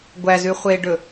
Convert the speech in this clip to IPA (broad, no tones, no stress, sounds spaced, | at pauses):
ɡʷ æ z ʉ χʷ eː ɖ ɵ